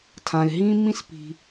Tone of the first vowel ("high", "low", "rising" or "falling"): low